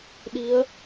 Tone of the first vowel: rising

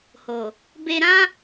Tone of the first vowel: low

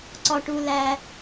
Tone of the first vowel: low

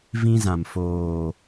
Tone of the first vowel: high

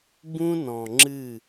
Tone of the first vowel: high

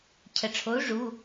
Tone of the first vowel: low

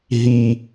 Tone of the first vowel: low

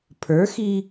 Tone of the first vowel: rising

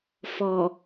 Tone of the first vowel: low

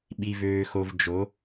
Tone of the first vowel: low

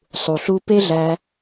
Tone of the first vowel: low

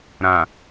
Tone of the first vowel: low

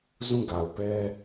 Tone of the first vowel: falling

